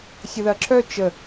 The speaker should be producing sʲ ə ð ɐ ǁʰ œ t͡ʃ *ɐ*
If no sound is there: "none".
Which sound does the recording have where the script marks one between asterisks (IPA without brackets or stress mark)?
ə